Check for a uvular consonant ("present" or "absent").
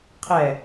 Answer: present